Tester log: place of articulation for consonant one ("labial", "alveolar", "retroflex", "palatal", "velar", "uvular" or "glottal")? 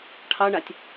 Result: retroflex